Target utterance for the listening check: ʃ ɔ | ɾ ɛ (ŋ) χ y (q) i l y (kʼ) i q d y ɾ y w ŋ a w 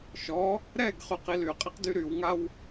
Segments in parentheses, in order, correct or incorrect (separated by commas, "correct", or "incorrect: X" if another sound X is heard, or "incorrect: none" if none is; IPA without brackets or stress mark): incorrect: ɡ, correct, incorrect: qʼ